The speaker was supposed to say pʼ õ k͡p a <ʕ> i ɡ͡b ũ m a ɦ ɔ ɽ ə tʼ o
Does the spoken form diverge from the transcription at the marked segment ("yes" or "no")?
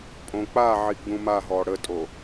no